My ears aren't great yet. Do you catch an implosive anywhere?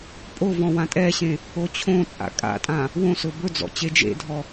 no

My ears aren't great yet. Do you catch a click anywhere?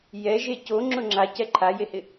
yes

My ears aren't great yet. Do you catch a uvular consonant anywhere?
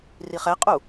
yes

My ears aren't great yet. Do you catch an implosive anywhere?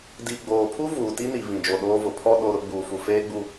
yes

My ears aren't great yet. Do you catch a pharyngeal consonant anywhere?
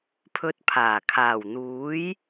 no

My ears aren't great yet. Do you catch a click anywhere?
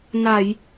no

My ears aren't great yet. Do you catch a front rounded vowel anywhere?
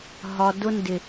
no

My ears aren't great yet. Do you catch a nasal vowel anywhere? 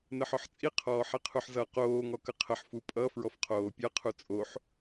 no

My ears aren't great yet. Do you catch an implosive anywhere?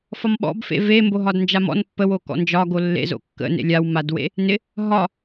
yes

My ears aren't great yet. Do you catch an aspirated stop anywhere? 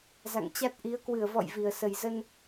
no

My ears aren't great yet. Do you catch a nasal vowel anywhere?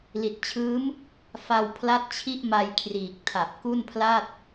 no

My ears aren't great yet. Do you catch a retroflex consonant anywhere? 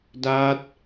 no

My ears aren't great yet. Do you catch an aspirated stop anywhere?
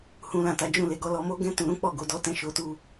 no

